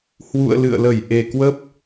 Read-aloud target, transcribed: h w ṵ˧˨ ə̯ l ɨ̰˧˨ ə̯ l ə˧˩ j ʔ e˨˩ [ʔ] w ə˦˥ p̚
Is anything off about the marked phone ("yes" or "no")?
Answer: yes